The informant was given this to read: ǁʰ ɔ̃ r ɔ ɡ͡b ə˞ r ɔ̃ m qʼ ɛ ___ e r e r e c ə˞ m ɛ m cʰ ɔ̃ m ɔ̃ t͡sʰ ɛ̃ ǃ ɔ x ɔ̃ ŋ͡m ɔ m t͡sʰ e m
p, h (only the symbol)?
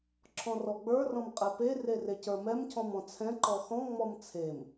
p